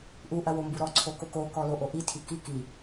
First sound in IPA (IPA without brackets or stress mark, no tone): ʔ